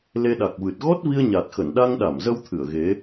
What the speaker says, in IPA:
l e˧ ɗ a˨˩ k̚ v ɨ˨˩ t̚ ɣ ɔ˦˥ t̚ v i˧ ə̯ ɲ a˨˩ t̚ x ə˧˩ n ɗ a˧ ŋ ɗ a˧˩ m z ə˧ w t̪ʰ ɨ˧˩ ə̯ ɣ e˨˦

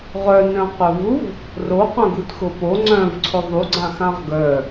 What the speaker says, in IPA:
ʁ œ n œ̃ q œ v u v | r o q œ̃ ɡ u t x ʊ p o ŋ͡ǀ œ̃ v ǀʰ ʊ ðˤ u ɡ͡ǀ ã x ã ʁ ɡ œ

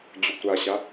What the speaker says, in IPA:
d͡ʑ u kʷ ɾ a ɕ a

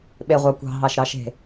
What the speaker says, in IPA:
ɓ e ʁʷ ɑ kʷ ɑ̤ ɦ ɑ ʃ ɾ ɑ ʃ e̤

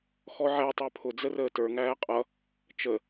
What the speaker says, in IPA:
x ɔ ʕ æ tˤ ə˞ pʰ ʊ d͡z ə r əː t ə˞ ŋ æː qʼ ʌ | t͡ʃ ə

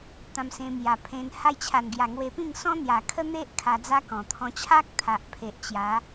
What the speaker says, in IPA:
t̪ ã˧ m s ẽ˧ m j a˨˩ pʰ ẽ˧ n h a˧ j t͡ɕʰ a˨˩ n ɡ j a˨˩ ŋ w e˧ p ĩ˥˧ ŋ s ɔ̃˦ n̪ j a˨˩ kʰ ə˦ n̪ e˦ ʔ kʰ a˧ d͡z a˦ k ɔ̃˨˩ t̪ʰ ɔ̃˧ t͡ɕʰ a˦ k̚ t̪ʰ a˨ ʔ pʰ e˨ ʔ t͡ɕ j a˨˦

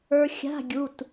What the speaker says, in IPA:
ə˞˧ xʲ a̤˧˥˧ ɡʲ u˩˧˩ t

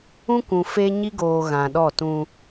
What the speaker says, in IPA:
ũ˦ kʷ ũ˨ f e˦ ɲ i˦ ɡ oː˨ ɣ ã˨ ɗ ɔ˦˨ t ũ˦

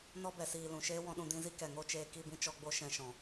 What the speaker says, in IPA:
n ɔ˦ b ɛ˨ s iː˨ l ũ˨ ʃ eː˦ w ɔ̃˧ ɗ ũ˧ d ĩ˧ z i˦ k ɛ˨ ŋ o˦ t͡ʃ eː˧ k i˦˨ b ĩ˦ t͡ʃ ɔ˧ ɡ͡b o˦ ʃ ɛ̃˧ ʃ ɔ̃˨

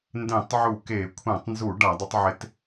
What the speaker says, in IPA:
n d ẽ˧˩˧ tˤ ʕ u˧˩˧ k e˧˩˧ kʷʰ ɛ̃˧˩˧ tˤ n z u˧˩˧ ɖ a˧˩˧ dˤ ʊ˨˦ tˤ ʕ ɪ˨˦ t

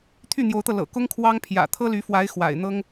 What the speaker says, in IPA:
t̪ʰ y˥˩ n̪ j o˧˥ ʊ̯ t̪ ɤ˧ l ɤ̰˨˩ k ʊ˥ ŋ kʰ w ɑ˥ ŋ pʰ j ä̰˨˩ t̪ʰ ɤ˥ l y˧˥ f w a˧˥ ɪ̯ x w a̰˨˩ ɪ̯ n̪ ɤ˥ ŋ

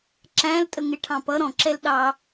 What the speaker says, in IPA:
ǁ æ̃ l tʼ ə ŋ ɪ ʈʰ ɑ̃ p ʌ ɾ ɔ̃ ǁ ɛ l ɗ ɑ

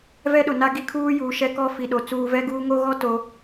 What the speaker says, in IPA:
v ɛ˦ ɗ ʊ˨ n a˦ ɡ i˦ kʰ uː˦ j uː˨ ʃ ɛ˦ k ɔ˦ f i˨ ɗ o˨ t͡s uː˨ v ɛ˦ ɡ uː˦ ŋ o˦ ɣ ɔ˦ t o˨

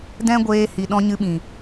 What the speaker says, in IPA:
d ɛ̃˦ ɡʷ eː˧ h i˨ ɗ ɔ̃˧ ɲ ɨ˧ ɓ ĩ˨

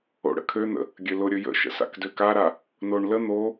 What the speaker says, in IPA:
o̰ ɽ ə̰ kʰ ø n̪ ə̰ | ɡʲ ø l ʊ ɾʲ ɵ j ə̰ ʃ ə̰ s a̰ k d ø k a ɾ a | n o ɳ l ə n̪ o

